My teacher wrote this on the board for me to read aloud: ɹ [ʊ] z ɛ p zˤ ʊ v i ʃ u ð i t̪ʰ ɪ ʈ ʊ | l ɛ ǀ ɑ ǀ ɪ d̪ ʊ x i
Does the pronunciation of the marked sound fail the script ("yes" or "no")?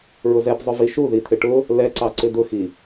no